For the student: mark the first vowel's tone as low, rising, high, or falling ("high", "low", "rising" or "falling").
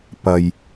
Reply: low